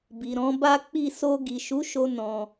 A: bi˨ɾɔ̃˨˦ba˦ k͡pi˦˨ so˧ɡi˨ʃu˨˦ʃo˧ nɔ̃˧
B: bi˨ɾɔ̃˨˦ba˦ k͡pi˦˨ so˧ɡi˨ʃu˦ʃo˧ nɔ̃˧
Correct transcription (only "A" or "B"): A